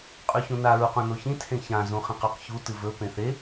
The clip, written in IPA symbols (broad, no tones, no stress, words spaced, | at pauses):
qʼʉçũna ɹuqũnoçĩ tʰẽçã zũχĩqʉqçu tɨvɵ pẽθe